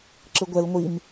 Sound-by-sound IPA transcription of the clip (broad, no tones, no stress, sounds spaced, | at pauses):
ǁ ɯ ɡʷ ɛ l ŋʷ i m